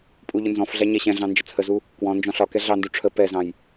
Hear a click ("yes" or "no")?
no